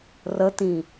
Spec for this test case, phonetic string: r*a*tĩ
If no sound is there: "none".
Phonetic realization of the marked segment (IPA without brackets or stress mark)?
ə